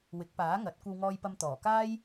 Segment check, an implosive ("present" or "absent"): absent